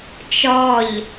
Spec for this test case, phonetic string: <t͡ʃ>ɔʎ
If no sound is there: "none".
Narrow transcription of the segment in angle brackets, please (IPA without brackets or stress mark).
t͡ʃ